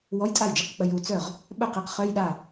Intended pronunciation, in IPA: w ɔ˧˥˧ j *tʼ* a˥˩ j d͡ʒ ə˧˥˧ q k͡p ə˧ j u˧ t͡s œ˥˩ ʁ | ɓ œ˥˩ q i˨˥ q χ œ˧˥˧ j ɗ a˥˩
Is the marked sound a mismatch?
no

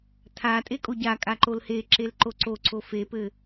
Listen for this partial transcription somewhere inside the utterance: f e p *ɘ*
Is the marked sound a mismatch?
no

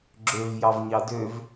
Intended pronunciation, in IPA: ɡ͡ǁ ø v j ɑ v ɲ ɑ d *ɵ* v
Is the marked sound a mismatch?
yes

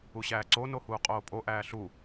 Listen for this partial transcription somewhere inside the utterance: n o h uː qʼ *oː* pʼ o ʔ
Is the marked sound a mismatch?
no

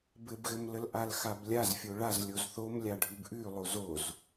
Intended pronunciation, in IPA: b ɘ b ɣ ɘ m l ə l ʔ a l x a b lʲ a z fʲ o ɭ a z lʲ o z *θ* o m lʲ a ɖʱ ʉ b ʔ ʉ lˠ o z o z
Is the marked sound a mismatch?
no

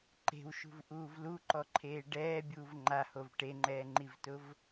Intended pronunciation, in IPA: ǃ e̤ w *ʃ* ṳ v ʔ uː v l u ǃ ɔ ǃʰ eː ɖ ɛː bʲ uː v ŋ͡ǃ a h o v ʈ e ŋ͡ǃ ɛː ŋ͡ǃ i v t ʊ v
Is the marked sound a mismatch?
no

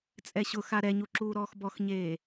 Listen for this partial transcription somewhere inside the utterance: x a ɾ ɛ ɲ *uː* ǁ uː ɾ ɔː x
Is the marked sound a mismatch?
yes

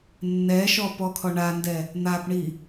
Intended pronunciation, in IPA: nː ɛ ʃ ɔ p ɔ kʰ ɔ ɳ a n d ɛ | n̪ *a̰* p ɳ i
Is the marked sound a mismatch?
yes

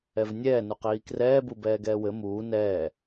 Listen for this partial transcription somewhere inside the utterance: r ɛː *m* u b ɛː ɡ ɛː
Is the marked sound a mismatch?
yes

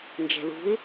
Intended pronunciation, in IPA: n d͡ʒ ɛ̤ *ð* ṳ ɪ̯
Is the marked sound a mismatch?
no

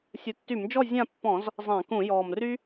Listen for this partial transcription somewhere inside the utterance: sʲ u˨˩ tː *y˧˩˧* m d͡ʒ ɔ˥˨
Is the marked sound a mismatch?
no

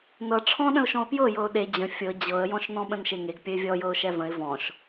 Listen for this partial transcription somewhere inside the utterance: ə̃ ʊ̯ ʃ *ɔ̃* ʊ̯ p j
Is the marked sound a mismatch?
no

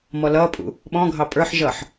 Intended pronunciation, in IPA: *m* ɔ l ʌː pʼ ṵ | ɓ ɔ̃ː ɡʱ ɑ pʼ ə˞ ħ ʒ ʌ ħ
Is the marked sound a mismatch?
no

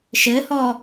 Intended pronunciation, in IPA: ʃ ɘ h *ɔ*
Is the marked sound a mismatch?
no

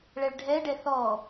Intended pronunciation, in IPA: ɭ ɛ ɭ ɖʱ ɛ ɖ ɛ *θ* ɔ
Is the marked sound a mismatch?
no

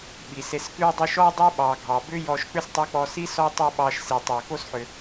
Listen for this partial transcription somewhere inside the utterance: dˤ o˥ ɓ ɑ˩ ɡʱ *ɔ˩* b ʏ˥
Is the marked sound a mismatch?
yes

